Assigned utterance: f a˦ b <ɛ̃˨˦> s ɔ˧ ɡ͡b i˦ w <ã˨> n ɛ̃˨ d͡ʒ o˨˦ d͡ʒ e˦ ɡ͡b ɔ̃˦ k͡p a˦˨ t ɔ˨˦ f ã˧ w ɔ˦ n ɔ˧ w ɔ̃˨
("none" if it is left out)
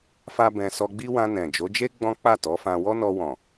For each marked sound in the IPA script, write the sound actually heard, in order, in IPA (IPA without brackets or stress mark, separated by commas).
ɛ̃˧, ã˧